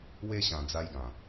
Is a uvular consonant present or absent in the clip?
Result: absent